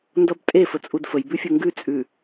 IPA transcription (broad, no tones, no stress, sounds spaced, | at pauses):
n d ʌ b tʼ e f ə t͡sʼ u d f ə j b ʉ fʲ ʊ ŋ ɡ ʉ t͡sʼ ʉ